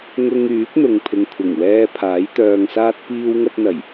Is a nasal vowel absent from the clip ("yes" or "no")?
yes